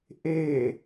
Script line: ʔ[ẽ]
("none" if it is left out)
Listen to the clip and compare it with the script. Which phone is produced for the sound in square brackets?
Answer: e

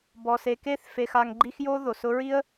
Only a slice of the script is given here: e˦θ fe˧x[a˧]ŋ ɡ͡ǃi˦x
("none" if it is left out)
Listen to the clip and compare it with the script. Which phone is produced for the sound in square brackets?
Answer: a˧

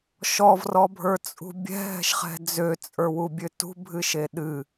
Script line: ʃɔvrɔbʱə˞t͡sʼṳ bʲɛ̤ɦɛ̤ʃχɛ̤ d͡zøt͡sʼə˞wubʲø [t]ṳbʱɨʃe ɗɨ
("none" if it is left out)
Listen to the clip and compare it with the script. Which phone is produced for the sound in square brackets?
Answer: t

